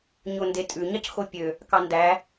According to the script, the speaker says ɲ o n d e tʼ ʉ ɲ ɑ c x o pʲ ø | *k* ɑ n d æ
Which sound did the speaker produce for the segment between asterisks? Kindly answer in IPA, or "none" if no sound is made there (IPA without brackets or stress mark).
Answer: k